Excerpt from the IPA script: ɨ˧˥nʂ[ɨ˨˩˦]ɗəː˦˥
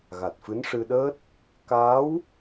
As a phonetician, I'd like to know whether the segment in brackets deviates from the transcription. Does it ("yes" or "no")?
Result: yes